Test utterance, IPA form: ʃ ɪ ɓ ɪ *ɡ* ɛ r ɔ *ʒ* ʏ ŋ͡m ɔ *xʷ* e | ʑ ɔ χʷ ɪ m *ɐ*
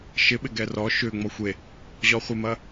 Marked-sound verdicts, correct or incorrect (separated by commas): correct, incorrect, correct, correct